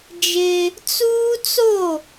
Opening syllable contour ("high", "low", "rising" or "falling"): high